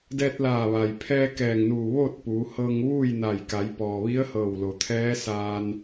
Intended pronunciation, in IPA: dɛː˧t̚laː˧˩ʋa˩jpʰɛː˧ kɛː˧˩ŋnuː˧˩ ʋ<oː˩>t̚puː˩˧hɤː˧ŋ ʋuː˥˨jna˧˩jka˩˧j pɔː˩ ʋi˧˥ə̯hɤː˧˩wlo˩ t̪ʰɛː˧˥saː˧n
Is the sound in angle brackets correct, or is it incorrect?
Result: incorrect